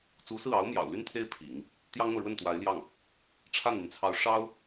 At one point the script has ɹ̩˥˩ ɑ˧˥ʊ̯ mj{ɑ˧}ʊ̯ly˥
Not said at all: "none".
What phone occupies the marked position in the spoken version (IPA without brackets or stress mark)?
ɑ̰˨˩